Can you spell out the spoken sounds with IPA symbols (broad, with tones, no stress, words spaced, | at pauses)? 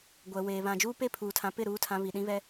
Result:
ɡʷɛ˨weː˨ βã˨d͡ʒuː˦pe˦˨ pʰuː˨tʰã˨pɪ˦˨ ɾuː˦tʰã˦ βi˨ɗĩ˦βɛ˦